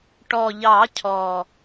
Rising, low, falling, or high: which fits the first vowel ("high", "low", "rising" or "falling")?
low